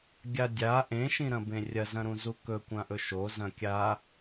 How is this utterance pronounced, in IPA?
ɡʲ a dʲ a ʔ ẽ ʃ ĩ ɾ ɐ̃ b ẽ rʲ ɐ z ɐ̃ ɾ ũ z u k ɵ kʷ ã ʔ ɵ ʃ o z ɐ̃ kʲ a

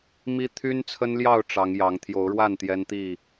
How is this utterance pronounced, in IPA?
m i˦ t̪ʰ y˦ n t͡sʰ ə˦ n l j ɑ˥˨ ʊ̯ ʈ͡ʂ ɑ˨˦ ŋ j ɑ˨˦ ŋ t̪ʰ j o˨˦ ʊ̯ ɻ w a˥˨ n t̪ j ɛ˦ n t̪ i˥˨

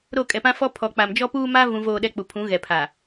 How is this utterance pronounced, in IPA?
ɾ o˦˨ kʼ ɛ˨ p ã˦ f ɔ˦ pʰ ɔ˨ k͡p a˨ m d͡ʒ ɔ˦ p uː˦ m a˦ v ũ˨ v oː˨ ɗ ɛ˨ k͡p u˨ pʰ ũ˨˦ ɣ ɛ˨ pʰ a˨

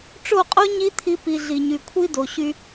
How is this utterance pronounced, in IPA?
ʈ͡ʂ o˦˨ qʼ o˦ ɲ i˦ t̪ʰ i˧ p i˨ ɮ i˨ ɲ y˨ kʷʰ i˦ d o˨ ɕ y˧

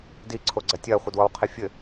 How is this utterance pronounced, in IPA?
d i ǀʰ o ɡ͡ǀ ɐ tʲ ɐː χʷ ɘ d w ɔ w qʰ i fʲ ɘ

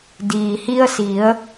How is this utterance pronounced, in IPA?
d iː˩ h i˧ ə̯ s i˩˧ ə̯

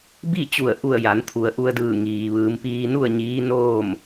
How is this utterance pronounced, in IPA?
b i˥˨ t͡ɕ u˧˩ ə̯ ʔ u˧˩ ə̯ j a˩˧ n t̪ʰ u˩ ə̯ ʔ u˧ ə̯ d ɯː˧˩ ŋ iː˩ ʋ ɯː˩˧ m p iː˧ n u˥˨ ə̯ ɲ iː˧˥ n oː˥˨ m

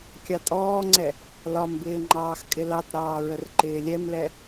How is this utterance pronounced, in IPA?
kʲ ɑ tʼ ɔː ŋ͡ǀ ɛ | l ɒ m b ɪː ŋ͡ǃ ɑː x kʼ ɪ l ɑ t ɾ ɑː ɹ ə r ǃ ɪː lʲ ɛ m l ɛ

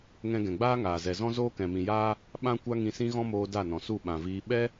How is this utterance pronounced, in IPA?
ŋ ɛ̃˧ ɡ ɛ̃˨ ɡ͡b aː˦ ŋ aː˨ z ɛ˨ z ɔ̃˦ z oː˦ k ɛ̃˨ m ĩ˨ j aː˦ | ɓ ã˦ kʷ a˦ ŋ ĩ˧ s ĩ˦ ɣ ɔ̃˦ m oː˧ d a˦˨ n ɔ̃˨ s u˦˨ ɓ ã˨ v iː˧ ɓ ɛ˦

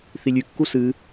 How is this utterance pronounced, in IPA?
θ i lʲ ʉ kː u s ɨ

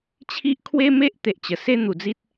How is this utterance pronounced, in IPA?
t͡ɕʰ i˦ ʔ kʰ w e˦ m e˦ ʔ t̪ e˨ ʔ t͡ɕ ə˨˩ s e˥˧ n̪ u˨˩ d͡z i˦ t̚

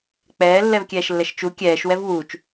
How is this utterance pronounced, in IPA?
k͡p ɛː lː ɛ v kʲ ɛː ʃ lː ɛ ʃ t͡ʃ u kʲ ɛː ʃ w ɛ v w uː t͡ʃ

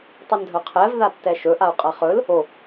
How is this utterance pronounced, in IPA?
tˤ o n dʱ œ qʰ ɛ v ð a tː ɛ ʃ ɵ ʔ a u̯ qʼ a χ ɵ l | o

